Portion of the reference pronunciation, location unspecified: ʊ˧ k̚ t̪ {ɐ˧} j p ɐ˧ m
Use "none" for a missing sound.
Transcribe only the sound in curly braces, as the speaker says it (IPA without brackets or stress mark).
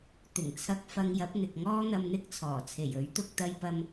ɐ˧